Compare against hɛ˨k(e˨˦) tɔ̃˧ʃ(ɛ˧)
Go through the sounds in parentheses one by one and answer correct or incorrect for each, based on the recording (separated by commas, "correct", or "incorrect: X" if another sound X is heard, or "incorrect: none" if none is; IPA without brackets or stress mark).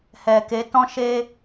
correct, incorrect: e˧